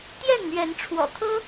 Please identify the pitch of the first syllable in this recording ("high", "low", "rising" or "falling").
falling